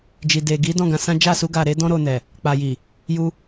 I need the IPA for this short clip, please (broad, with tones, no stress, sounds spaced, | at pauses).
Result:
d͡ʒ i˨ d e˨ ɡ i˨˦ d ɔ̃˦˨ ɡ ã˧ s ã˦ d͡ʒ a˦˨ s u˧ ɡ a˨ ɾ e˨˦ d ɔ̃˧ ɾ o˨ n ɛ˨ | k͡p a˨ j i˨ | j u˧